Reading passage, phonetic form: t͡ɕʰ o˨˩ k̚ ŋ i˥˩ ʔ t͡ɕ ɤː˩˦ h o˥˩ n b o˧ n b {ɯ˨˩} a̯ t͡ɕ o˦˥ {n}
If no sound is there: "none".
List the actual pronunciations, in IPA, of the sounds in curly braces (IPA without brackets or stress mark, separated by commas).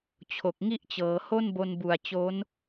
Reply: u˨˩, n